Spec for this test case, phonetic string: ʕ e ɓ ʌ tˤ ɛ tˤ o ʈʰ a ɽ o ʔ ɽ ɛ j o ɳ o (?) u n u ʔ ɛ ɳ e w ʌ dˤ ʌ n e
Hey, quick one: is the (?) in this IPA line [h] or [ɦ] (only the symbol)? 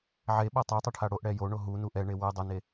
ɦ